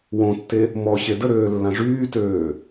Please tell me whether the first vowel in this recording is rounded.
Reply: yes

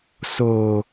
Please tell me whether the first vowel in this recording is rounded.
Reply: yes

